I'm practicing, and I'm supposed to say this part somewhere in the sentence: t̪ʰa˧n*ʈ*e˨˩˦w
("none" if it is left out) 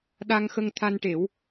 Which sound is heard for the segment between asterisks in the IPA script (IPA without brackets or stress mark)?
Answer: ʈ